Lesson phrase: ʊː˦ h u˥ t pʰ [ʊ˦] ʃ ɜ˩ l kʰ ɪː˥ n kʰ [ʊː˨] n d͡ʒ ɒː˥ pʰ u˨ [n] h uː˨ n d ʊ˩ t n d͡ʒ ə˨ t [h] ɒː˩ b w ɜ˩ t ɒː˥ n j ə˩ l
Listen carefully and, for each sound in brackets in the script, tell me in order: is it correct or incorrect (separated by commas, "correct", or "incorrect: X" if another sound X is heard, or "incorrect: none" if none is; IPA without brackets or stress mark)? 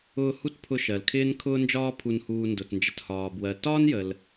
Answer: correct, incorrect: ʊː˥, correct, correct